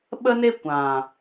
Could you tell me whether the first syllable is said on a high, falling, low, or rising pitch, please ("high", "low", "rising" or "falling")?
high